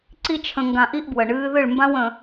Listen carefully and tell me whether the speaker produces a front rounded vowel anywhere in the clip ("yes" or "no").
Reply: no